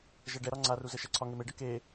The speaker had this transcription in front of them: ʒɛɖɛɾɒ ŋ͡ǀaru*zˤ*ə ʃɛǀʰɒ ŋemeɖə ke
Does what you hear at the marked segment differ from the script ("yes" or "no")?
yes